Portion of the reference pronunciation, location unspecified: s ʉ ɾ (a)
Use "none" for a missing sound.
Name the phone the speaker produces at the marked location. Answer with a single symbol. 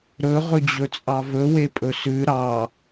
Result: ɑ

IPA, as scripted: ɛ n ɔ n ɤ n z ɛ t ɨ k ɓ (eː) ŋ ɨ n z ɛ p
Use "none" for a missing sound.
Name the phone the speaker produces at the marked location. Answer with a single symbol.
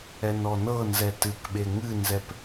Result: e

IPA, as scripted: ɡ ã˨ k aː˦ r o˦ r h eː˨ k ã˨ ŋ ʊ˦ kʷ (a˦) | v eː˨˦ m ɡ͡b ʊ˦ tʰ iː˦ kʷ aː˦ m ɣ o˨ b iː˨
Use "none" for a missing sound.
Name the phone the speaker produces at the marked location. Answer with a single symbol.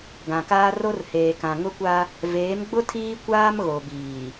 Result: a˦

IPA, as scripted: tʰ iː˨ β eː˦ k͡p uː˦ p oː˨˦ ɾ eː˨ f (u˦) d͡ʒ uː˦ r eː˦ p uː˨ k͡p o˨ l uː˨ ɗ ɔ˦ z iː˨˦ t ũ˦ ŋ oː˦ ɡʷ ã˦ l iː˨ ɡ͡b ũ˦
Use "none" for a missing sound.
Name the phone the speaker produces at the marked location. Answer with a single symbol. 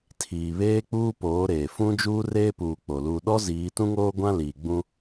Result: ũ˦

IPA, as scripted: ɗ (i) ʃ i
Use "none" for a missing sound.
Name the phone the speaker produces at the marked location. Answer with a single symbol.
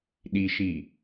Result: i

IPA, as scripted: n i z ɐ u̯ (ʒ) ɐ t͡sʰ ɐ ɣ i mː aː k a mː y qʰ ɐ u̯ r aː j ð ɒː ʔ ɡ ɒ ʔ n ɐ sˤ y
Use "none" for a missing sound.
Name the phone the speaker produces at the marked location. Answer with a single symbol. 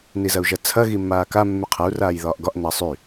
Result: ʒ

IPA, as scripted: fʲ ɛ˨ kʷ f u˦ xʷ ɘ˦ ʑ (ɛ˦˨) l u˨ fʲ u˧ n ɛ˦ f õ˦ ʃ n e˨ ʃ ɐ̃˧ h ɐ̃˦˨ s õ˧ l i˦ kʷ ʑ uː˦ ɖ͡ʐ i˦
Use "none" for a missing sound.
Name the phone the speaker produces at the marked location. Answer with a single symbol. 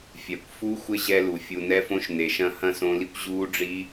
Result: ɛ˧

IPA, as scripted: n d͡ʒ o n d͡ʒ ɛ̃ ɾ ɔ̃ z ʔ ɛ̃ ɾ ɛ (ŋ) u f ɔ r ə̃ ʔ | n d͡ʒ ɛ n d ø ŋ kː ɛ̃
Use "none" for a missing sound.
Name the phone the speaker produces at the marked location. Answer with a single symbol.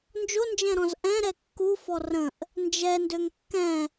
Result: kː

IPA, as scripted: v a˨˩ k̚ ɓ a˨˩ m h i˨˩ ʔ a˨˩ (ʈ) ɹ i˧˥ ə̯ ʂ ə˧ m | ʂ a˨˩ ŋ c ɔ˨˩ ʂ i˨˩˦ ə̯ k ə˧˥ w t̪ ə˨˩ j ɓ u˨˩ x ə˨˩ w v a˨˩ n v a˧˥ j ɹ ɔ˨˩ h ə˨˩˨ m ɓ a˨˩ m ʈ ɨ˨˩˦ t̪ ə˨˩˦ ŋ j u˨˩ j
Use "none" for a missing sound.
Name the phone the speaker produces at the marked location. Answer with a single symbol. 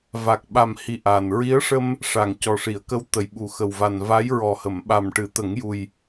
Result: n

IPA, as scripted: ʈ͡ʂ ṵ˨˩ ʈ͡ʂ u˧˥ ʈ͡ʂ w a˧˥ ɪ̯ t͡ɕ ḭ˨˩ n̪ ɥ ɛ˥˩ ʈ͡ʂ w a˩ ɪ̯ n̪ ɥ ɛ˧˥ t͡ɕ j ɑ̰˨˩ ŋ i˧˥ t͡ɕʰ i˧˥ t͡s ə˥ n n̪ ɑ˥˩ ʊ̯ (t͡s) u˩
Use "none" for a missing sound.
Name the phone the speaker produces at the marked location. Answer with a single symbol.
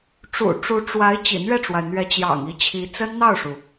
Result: ʂ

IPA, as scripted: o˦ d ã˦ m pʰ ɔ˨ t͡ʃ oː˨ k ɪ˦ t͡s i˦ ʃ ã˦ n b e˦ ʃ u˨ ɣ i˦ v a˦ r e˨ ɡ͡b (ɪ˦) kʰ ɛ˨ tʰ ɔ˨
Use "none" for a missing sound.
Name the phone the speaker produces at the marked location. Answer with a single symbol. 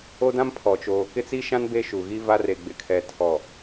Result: ɪ˨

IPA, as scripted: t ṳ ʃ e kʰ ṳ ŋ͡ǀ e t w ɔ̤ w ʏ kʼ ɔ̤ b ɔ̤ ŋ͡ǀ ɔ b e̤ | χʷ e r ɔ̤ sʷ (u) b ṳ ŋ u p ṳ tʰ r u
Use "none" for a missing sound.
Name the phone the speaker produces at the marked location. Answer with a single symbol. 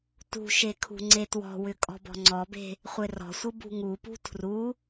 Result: ɯ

